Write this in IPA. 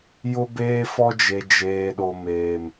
j ʊ˦ b eː˦ f ɔ˦ d͡ʒ e˨ d͡ʒ eː˨ ɗ o˨ m eː˨ m

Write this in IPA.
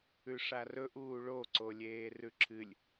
ʉ ʂ a r ɵ ʔ uː ɭ o ǀ o lʲ eː r ʉ ǁʰ ɨ lʲ

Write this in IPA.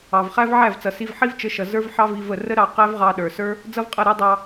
ɑ˨ v χ æ˦ v ʕ æ˦˨ v t͡s ʌ˨ s i˧ v ħ i˦ v t͡ʃ ə˨˦ ʃ ʌ˨ z ə˞˦ v ħ ɑ˦ v i˧ v ə˦˨ r ə˦ ɾ ɑ˦˨ q æ˦ v ʁ ɑ˧ ɗ ə˞˨ s ə˞˦ | d͡z ʌ˦ v qʼ ʌ˦˨ ɾ æ˦ dˤ ɑ˧

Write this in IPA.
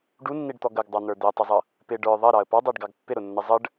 ɖ u nː i ɖ t̪ ɔ ɡ ə ɡ dˤ ɑ n̪ ə˞ d̪ ɪ ə̯ tˤ ɪ zˤ ʌ | p ɪ ɖ ə˞ ðˤ ʌ ɾ ɑ ə̯ p ɑ dˤ æ ɖ ɡ ɑ ɡ pː ɪ ɾ ʊ nː ə zˤ ə ɖ

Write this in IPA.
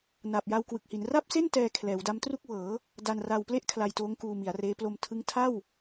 n aː˨˩ p̚ j a˧ w k w ɯ˨˩ k̚ h i˩˦ n r a˥˩ p̚ s e˥˩ n t ɛː˧ kʰ l ɛː˩˦ w d a˦˥ m t r u˥˩ k̚ w ɤː˩˦ | d a˧ n r a˧ w p l e˥˩ ʔ kʰ l a˧ j t oː˦˥ ŋ k uː˧ m i˩˦ a̯ r eː˦˥ p l o˧ m tʰ ɯ˦˥ ŋ tʰ a˥˩ w

